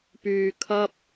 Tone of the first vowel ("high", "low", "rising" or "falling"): low